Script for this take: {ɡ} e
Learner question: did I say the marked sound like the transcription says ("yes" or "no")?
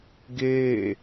yes